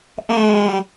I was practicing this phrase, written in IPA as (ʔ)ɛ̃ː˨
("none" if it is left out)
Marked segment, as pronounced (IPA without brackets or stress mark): ʔ